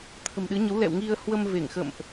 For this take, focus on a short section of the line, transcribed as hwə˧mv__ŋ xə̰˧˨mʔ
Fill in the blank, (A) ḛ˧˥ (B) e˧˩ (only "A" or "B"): B